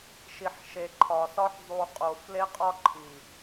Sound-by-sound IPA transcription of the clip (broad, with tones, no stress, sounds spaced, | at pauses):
ʃ i˨ ħ ʃ e˨ ǃʰ ɒ˨ s ɒ˦ ħ zˤ u˨ qʼ o˨ f l e˦ qʼ ɒ˦ ǃʰ i˨